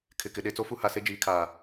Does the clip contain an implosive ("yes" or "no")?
yes